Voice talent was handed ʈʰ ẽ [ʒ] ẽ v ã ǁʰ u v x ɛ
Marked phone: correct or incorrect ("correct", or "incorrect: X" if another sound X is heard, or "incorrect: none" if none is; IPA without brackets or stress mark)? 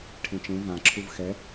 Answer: incorrect: t͡ʃ